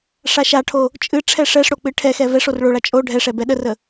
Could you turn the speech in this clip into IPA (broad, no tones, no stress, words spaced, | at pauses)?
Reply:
ʂaʃaʈʰo | t͡ʃʼɨ ʈ͡ʂʰɛʂɛʂɽo k͡pɨʈʰɛxɛ vɛʂor ɭoɭa t͡ʃʼo ɖʱɛʂɛ bɛɗərə